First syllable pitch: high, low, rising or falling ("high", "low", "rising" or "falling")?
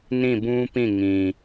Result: falling